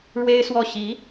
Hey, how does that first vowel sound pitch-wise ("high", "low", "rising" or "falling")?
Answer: high